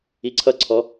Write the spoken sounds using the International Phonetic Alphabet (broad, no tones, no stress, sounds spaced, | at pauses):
i ǀʰ ʌ ǀʰ ɔ